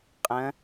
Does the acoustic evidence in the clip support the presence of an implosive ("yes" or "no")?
no